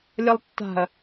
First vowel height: mid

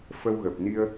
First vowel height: mid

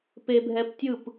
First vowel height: mid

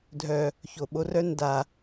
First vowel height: mid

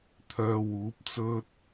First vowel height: mid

